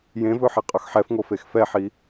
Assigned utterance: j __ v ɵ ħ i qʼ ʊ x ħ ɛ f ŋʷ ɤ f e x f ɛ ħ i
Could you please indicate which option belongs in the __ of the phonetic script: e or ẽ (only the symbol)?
ẽ